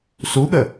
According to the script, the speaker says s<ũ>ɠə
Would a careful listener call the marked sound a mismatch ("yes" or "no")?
yes